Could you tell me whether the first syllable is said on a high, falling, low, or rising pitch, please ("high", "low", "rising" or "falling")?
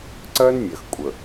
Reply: high